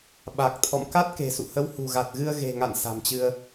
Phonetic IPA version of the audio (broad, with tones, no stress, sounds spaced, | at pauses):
ɓ a˨˩ k̚ t̪ʰ ɔ̰˧˨ m k a˦˥ t̚ k e̤˨˩ s ṵ˧˨ h ə˨˦ w h ṳ˨˩ ɣ a˨˩ t̚ ɣ ɨ˧ ə̯ ɣ e̤˨˩ ŋ a̰˧˨ n s a̤˨˩ m t͡ɕ ɨ˧ ə̯